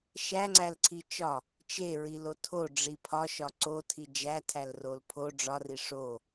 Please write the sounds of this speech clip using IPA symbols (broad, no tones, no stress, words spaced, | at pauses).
ʃæŋ͡ǀælǀʰi t͡ʃɒ | t͡ʃeɹilo tʰoɖ͡ʐi pʰɒʃɒ ǀotʰi d͡ʒætʰælrol pʰo ɖ͡ʐɒri ʂo